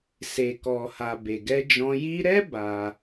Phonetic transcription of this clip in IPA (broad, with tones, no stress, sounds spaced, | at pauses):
s e˨ k ɔ˨ h a˨ b e˨ ɡ ɛ˧ d͡ʒ ɔ̃˧ j i˧ ɾ ɛ˦ b a˧